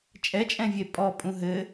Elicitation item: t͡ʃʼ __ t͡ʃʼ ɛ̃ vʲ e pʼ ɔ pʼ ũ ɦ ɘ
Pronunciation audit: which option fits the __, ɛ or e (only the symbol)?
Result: ɛ